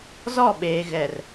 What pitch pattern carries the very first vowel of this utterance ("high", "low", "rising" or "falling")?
falling